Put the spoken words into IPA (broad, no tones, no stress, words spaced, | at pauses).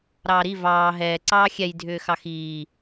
ɾɑːɾi vɑː ɦɛː ǀɑːxʲɛj dʱʏːxɑxiː